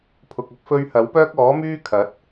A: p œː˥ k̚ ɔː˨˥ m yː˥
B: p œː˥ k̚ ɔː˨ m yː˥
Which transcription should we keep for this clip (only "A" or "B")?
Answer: A